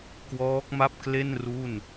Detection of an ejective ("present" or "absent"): absent